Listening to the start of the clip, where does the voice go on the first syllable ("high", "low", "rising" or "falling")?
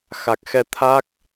low